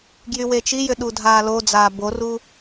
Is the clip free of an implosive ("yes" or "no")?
no